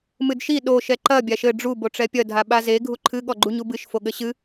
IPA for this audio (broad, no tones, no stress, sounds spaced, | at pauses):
m ɨ d ʃ i ɗ o ʃ ɛ ǃ ɐ bʲ a ʃ ɘ ɖ͡ʐ u b o ʈ͡ʂ ɛ pʲ ɐ dʱ a ɓ a z e ɡʱ u ǃʰ ɨ ɠ ɔ ɡ͡ǃ u ɲ u b ɨ ʃ f o ɠ ɘ ɕ ɨ